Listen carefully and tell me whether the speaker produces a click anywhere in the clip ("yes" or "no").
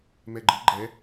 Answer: yes